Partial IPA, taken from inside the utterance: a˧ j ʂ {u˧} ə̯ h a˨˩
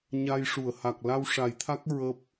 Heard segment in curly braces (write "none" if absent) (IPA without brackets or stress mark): u˨˩˨